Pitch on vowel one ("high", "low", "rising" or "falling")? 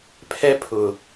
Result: high